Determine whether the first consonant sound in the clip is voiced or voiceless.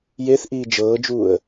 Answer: voiced